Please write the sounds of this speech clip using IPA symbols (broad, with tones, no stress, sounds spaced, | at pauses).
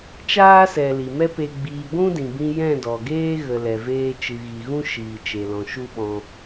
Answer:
t͡ʃ aː˦ s ɛ˨ l i˨ m ɛ˦ p e˧ ɡ͡b iː˧ ɡʷ ũ˦ d ĩ˨ b ĩ˧ j ɛ̃˦˨ d ɔ˨ ɡ eː˦ ɣ ə˨ l ɛ˨ v eː˧ t͡ʃ ɨ˨ ɣ i˨ ɣ ũ˦ ʃ iː˨ t͡ʃ e˨ l ɔ̃˨ ʃ u˦ ɓ ɔ̃˧